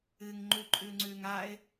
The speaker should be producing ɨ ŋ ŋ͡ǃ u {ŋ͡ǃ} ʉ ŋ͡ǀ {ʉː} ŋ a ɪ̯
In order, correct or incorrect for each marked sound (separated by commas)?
incorrect, correct